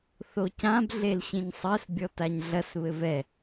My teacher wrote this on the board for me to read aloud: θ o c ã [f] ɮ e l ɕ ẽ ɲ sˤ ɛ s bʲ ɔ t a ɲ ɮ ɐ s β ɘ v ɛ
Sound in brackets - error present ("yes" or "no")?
yes